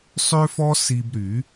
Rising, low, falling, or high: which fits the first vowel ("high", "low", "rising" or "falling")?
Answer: high